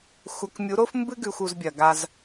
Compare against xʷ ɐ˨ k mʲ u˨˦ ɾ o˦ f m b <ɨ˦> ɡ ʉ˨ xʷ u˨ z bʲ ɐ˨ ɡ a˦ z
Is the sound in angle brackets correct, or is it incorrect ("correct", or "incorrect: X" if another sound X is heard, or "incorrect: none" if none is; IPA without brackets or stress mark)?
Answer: correct